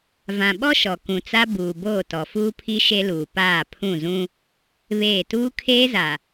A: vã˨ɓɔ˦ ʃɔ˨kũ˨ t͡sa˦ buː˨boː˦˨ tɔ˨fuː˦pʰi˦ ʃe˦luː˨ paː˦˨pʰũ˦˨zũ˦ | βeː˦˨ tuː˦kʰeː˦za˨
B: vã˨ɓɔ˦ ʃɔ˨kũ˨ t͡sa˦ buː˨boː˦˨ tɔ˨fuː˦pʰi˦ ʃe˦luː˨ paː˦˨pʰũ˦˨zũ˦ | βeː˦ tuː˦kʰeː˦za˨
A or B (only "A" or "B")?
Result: A